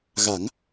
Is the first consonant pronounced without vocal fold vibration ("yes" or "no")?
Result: no